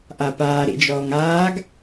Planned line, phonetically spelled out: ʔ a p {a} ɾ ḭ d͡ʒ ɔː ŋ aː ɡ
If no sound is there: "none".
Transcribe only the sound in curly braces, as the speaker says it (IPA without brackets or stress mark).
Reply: aː